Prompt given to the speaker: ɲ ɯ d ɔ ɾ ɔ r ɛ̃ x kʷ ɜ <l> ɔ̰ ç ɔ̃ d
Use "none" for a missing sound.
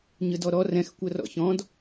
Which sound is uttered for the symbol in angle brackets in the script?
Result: r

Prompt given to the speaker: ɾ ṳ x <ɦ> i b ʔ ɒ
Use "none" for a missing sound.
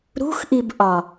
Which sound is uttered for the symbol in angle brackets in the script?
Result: ʔ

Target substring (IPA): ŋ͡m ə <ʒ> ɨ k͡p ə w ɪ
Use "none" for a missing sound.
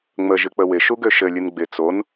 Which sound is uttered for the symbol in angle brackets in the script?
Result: ʒ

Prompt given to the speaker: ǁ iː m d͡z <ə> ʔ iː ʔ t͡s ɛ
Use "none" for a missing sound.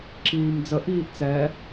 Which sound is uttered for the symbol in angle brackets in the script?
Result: ə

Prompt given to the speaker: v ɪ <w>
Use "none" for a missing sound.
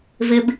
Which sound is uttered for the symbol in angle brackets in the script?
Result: b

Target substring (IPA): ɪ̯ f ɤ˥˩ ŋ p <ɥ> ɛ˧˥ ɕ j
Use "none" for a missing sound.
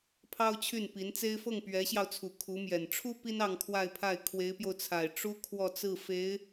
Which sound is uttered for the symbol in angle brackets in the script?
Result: ɥ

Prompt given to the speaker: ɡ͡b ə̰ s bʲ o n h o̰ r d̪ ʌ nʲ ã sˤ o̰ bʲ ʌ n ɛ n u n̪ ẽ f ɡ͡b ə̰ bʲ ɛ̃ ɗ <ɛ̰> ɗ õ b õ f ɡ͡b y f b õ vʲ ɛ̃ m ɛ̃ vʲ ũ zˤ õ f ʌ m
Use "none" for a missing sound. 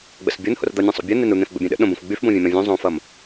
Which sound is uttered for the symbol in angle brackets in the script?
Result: ə̰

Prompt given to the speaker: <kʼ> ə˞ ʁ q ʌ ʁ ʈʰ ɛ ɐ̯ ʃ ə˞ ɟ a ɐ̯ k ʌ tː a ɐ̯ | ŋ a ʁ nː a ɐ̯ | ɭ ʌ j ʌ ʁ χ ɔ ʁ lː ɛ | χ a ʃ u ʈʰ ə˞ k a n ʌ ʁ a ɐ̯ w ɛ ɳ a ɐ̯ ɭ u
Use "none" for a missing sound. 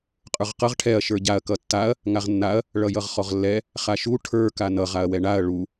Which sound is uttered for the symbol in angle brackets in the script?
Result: qʼ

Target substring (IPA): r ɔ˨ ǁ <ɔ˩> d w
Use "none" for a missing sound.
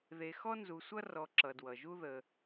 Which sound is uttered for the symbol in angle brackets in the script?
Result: ʌ˩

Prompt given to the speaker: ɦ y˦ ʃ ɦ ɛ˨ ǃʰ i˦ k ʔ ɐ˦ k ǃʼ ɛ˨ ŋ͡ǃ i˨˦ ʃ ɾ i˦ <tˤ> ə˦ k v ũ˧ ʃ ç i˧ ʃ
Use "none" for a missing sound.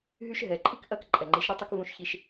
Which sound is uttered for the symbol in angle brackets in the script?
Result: tˤ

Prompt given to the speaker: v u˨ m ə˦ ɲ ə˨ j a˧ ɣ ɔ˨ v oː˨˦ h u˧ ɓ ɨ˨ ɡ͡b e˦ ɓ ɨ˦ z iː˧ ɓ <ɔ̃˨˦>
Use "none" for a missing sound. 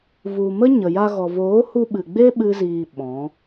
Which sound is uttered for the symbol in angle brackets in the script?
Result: ɔ̃˨˦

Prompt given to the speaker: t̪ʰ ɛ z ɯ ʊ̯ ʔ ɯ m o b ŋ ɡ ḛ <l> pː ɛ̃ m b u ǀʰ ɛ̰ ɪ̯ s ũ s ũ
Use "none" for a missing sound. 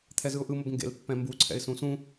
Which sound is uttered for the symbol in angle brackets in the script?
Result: l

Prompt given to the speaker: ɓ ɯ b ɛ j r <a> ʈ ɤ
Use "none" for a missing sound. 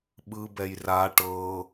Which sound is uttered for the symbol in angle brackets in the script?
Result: a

